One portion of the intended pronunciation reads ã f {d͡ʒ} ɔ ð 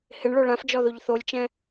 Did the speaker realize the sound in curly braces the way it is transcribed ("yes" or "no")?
yes